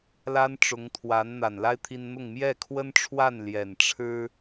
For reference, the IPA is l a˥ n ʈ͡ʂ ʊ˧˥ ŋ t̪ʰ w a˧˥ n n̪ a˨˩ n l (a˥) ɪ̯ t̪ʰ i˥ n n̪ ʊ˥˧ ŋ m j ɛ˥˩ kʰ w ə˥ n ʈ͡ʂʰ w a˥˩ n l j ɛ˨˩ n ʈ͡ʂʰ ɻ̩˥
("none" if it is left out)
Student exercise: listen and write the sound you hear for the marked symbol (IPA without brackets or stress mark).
a˥